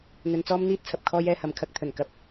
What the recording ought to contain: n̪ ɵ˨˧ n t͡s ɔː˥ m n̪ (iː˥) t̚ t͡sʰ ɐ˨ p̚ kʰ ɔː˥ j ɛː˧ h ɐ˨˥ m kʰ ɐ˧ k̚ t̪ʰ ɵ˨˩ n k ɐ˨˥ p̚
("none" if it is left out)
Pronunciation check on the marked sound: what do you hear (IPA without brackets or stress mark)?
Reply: iː˥